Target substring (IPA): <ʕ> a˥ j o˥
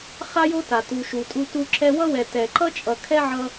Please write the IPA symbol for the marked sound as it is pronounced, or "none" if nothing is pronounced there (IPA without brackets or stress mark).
χ